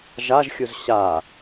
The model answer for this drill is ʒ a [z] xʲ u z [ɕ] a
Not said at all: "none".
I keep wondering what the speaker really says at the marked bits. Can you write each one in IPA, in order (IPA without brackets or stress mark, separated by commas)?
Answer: ʒ, ɕ